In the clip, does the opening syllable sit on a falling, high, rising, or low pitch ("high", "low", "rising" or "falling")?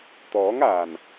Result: rising